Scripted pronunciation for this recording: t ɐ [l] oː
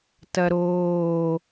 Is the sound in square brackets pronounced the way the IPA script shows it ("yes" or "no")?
no